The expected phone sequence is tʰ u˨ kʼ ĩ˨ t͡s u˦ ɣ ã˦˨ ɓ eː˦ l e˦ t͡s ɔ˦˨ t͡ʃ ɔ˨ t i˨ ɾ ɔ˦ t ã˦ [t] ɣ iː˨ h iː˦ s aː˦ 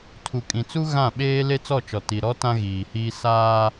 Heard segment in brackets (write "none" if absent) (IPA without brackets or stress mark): none